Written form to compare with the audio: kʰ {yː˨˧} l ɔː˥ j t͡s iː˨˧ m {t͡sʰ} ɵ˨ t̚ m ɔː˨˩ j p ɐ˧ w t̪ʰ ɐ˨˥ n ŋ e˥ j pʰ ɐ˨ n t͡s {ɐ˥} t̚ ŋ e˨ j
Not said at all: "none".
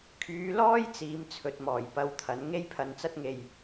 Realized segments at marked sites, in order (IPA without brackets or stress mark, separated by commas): yː˨˧, t͡sʰ, ɐ˥